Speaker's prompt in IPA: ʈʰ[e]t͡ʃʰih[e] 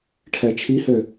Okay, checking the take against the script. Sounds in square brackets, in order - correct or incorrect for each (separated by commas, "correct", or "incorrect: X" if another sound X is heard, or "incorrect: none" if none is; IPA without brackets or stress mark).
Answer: incorrect: ɛ, incorrect: ø